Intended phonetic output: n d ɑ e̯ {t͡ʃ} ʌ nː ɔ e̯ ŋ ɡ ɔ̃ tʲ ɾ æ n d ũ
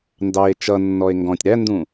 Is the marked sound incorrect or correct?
correct